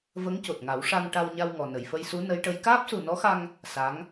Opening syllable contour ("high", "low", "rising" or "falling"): rising